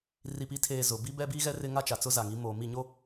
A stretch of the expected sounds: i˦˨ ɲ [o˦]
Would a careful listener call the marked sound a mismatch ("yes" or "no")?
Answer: no